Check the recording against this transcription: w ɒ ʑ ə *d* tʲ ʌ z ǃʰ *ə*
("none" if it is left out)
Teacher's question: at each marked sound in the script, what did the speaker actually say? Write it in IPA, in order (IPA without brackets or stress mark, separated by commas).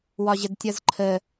d, ə